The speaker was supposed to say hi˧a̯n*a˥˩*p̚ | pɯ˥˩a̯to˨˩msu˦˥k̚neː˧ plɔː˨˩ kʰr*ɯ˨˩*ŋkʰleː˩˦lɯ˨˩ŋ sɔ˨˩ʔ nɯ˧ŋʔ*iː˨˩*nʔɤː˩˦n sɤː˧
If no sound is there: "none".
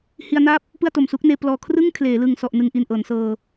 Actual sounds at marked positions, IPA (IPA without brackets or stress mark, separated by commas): a˥˩, ɯ˥˩, i˨˩